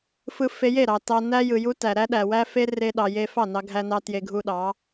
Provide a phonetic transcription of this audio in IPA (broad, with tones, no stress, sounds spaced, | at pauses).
f ɯ˧ f e˧ j e˦˨ ɾ ɑ˨ t ɑ˧ n æ˦ j ɯ˨ j u˦ t æ˨ ɾ æ˦ ɗ æ˨ w æ˦ f e˦ r e˦ ɗ ɑ˧ j e˦ f ɑ˦˨ n ɑ˧ ɡʱ æ˧ n ɑ˧ t j e˧ ɡʱ u˧ ɗ ɑ˨˦